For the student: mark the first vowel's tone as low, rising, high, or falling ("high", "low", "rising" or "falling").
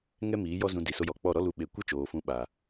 high